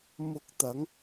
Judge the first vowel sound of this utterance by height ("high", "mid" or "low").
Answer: high